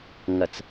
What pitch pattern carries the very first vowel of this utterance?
low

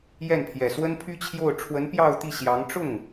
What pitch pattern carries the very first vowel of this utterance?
falling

